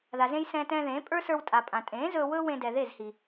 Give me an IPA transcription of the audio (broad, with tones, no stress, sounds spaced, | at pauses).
ð a˨ z ẽ˧ j s ɛ̃ː˧ t ɛ̃ː˧ ð ẽː˨˦ pʼ ə˞˦ s ə˞˧ w tʼ a˨ pʼ ã˨ tʼ ẽː˨˦ z ɵː˧ w ɵː˦ w ẽ˧ d ɛ˨ ð e˦˨ z h i˨